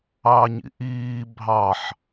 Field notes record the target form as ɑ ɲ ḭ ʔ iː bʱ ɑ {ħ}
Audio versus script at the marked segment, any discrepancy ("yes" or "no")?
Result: no